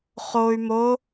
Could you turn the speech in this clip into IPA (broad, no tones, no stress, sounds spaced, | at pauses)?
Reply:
χ o y̯ m o